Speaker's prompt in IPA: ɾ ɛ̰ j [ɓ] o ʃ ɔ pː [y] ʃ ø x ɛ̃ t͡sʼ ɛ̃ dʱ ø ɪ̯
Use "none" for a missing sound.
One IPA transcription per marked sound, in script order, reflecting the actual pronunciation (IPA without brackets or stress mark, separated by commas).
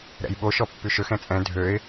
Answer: ɓ, y